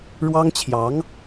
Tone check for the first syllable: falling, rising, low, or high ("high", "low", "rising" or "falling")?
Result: high